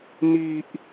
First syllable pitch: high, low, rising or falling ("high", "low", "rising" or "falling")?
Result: high